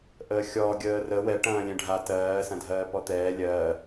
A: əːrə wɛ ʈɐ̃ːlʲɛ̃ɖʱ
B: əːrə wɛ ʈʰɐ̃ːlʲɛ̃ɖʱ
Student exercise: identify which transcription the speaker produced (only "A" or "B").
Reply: A